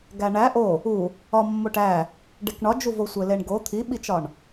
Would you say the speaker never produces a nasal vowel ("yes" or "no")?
yes